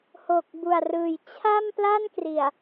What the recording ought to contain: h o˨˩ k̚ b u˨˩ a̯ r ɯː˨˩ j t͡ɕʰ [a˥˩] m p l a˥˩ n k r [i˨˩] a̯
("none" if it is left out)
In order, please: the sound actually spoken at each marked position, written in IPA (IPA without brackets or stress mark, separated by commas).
a˥˩, i˨˩